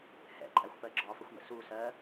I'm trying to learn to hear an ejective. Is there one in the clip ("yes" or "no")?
yes